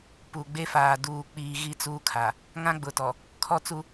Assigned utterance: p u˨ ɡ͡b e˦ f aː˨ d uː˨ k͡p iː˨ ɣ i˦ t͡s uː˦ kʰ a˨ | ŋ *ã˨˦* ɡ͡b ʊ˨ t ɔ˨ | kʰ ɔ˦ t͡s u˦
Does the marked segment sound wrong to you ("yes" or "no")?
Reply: yes